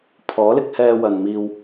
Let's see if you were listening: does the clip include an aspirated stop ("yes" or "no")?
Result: yes